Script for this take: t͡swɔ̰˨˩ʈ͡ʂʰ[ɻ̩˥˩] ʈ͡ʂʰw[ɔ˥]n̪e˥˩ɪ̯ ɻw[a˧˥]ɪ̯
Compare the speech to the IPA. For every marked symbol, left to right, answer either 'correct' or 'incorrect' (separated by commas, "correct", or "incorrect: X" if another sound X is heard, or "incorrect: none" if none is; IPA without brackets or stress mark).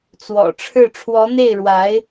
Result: correct, incorrect: ɔ˧˥, correct